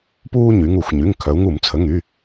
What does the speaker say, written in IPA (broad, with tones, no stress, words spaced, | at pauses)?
puː˦ɲy˩˧ŋu˧˩˧xʷɲy˩˧˩ŋ kʰœ˩˧u̯ŋu˧˩˧mt͡sʰə˩˧˩ŋy˩˧˩